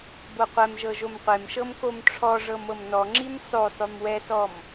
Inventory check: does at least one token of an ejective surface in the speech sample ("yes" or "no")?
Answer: no